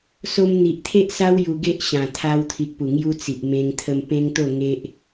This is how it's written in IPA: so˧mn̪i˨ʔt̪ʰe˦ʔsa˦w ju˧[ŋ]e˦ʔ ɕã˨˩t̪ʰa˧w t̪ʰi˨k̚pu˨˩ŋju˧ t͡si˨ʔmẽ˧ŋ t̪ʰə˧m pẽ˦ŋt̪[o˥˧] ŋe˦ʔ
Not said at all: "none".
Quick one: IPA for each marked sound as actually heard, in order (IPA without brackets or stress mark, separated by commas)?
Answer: ɡ, o˥˧